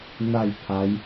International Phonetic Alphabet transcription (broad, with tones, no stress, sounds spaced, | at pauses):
n̪ a˥˧ j pʰ a˨˦ j